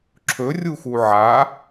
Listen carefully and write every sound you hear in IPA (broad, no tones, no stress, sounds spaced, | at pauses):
ǁʰ ɵ rʲ u x u ʕ a